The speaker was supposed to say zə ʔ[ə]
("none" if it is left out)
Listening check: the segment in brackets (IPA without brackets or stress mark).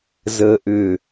ʏ